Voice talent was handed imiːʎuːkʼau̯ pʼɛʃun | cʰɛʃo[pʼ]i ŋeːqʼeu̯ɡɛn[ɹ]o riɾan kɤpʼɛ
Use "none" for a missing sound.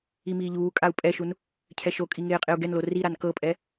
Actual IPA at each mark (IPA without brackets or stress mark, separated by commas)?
kʼ, l